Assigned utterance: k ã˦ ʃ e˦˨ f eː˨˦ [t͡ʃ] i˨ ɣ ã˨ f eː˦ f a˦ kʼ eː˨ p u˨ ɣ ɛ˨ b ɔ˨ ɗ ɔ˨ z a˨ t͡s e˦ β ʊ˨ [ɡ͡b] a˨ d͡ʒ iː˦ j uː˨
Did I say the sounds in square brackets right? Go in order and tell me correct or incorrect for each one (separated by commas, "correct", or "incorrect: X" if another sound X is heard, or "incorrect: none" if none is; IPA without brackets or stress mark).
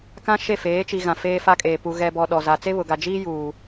correct, incorrect: ɡ